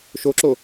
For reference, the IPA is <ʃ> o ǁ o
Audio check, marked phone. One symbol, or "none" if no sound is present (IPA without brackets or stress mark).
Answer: ʃ